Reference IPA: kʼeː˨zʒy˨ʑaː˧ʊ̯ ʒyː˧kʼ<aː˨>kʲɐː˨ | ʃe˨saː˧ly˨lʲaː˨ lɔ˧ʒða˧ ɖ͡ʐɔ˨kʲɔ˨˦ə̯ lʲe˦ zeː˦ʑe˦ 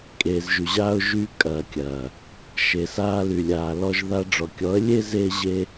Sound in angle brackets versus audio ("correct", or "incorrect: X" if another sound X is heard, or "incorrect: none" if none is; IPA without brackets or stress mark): incorrect: ɐː˨